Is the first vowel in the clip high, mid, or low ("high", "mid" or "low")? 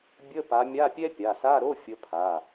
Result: mid